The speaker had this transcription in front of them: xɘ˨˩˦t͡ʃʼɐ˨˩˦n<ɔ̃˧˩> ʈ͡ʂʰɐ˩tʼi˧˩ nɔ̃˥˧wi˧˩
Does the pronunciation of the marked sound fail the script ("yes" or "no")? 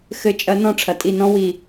no